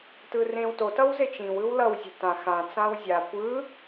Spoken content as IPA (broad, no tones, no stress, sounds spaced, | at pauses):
t ɯ r ẽ w t o t ʌ w z e t͡ʃ ĩ w ɯ w l ʌ w zʲ ɛ̤ t ã x ã t͡s ã w zʲ a kʷ ɯ